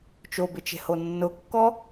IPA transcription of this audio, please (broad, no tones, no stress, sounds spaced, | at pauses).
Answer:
t͡ʃ o b ɪ t͡ʃ e̤ h o nː ʊ kː ɔ